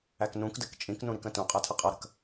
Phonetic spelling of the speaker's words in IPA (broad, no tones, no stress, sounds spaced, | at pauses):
æ k n ũ k d ə k t͡ʃʼ ĩ k n ũ ɾ i k ə̃ t ũ qʼ æ tʰ ʌ qʼ ʌ ɾ ə̤ k